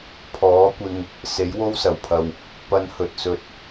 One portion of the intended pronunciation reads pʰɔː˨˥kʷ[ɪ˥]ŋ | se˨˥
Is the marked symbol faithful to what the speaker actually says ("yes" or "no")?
no